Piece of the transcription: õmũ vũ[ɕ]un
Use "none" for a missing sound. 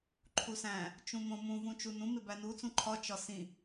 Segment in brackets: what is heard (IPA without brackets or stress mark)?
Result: t͡ʃ